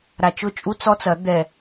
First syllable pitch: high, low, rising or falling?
low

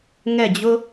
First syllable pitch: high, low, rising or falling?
falling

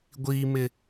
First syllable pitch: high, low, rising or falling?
low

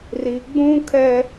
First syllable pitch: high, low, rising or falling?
high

